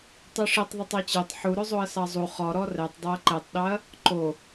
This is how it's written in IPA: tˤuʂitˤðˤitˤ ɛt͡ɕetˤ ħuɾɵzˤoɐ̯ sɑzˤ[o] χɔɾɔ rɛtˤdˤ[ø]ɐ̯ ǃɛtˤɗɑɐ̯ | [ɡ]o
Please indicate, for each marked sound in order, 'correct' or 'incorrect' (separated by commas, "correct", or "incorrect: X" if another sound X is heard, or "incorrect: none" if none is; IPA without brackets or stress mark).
incorrect: u, correct, incorrect: ǃ